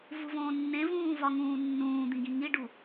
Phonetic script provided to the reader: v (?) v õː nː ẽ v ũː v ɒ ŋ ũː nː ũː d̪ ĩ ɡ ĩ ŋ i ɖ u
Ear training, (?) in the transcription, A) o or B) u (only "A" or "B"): B